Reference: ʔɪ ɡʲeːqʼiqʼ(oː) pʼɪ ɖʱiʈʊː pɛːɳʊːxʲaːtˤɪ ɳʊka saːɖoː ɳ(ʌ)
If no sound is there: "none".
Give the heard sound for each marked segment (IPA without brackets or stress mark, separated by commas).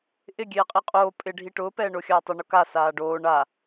oː, a